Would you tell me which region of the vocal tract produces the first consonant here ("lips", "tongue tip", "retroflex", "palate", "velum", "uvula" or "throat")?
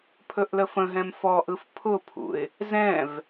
lips